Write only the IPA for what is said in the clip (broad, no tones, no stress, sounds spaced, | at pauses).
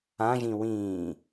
ã ʒ ĩ w ĩː